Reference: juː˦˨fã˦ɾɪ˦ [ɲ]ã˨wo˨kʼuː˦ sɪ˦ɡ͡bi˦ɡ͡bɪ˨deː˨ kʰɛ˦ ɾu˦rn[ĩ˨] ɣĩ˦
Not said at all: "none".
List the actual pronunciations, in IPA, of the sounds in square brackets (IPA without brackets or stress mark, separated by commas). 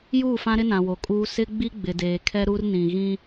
n, ĩ˨